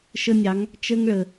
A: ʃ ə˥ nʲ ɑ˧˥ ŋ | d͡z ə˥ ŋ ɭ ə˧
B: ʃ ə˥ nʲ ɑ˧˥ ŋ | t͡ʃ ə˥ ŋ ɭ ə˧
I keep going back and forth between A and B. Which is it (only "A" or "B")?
B